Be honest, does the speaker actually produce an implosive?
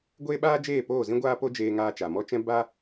yes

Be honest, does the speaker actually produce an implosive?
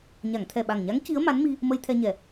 yes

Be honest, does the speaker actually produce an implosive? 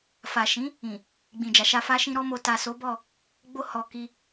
no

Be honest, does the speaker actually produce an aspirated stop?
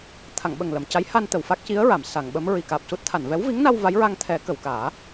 yes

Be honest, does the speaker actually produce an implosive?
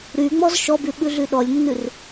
yes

